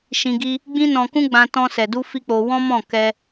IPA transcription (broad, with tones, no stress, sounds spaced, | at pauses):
ʃ ĩ˧ ɡ i˦ | ɡ͡b ĩ˦ n ɔ̃˧ k ũ˦ ɡ͡b ã˧ t ɔ̃˧ s ɛ˨ d u˧ f i˦ k͡p o˧ w ɔ̃˦ m ɔ̃˦˨ k ɛ˧